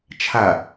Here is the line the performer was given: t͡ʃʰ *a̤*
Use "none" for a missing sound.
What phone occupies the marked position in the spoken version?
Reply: a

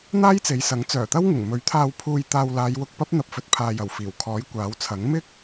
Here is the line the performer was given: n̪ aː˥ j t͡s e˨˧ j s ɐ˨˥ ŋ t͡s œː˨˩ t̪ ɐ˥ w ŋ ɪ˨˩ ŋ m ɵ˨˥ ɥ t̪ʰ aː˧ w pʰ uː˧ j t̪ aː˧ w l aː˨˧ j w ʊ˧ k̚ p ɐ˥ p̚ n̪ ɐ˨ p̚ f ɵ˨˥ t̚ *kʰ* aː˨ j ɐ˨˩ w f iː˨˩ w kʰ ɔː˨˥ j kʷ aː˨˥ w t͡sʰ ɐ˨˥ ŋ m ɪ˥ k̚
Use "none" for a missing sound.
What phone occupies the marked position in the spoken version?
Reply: pʰ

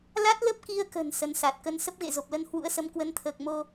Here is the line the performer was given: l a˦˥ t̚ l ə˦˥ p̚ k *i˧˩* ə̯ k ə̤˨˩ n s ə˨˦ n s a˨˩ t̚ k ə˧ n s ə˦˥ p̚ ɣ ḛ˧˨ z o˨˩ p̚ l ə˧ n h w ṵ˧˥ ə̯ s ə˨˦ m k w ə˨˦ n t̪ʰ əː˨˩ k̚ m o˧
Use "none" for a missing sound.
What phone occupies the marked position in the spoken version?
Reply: i˧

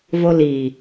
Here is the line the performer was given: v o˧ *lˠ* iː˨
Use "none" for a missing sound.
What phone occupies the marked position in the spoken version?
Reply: l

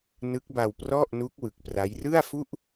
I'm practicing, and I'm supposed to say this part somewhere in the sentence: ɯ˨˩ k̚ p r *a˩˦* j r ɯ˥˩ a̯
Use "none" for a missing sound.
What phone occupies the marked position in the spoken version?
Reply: a˦˥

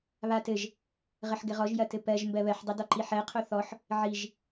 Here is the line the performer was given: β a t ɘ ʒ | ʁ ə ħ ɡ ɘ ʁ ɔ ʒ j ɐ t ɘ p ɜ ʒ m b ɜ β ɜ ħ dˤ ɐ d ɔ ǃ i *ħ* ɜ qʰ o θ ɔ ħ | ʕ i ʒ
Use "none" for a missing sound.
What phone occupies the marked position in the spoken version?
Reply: ħ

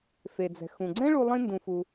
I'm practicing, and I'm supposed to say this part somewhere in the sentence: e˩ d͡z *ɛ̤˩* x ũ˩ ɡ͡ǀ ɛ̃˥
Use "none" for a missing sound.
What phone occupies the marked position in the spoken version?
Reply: ɛ̤˩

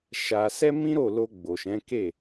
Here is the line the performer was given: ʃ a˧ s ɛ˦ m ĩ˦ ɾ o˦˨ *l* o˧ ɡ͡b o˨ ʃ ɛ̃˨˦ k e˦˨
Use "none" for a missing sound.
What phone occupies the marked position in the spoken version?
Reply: l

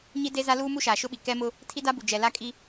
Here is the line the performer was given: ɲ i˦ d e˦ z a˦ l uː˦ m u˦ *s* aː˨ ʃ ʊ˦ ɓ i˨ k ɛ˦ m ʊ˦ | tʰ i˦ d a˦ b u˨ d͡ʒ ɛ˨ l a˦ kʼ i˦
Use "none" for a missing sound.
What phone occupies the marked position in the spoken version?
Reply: ʃ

